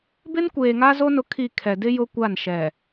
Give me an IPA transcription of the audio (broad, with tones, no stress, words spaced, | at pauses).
bɪ˦nkʷeː˨ŋa˦zo˦ nʊ˦kʰi˦˨ kʰɛ˨dɪ˦ jʊ˦kʷa˦˨nʃɛ˨